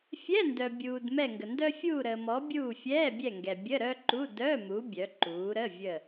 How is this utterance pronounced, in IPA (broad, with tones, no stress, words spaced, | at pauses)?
fʲɛ˧˥˧ndœ˨bʲuː˨d mɛ˦˨ŋɡə˨ndœ˥ fʲuː˦˨ɾəː˨mɔ˨˦ bʲuː˦˨fʲɛː˧˥˧bʲɛ˦˨ŋɡɛ˨ bʲə˧˥˧ɾœ˥ǃu˧˥˧ dœ˧˥˧mu˨˦ bʲœ˨˦ǃuː˨˦ɾə˧˥˧ vʲə˦˨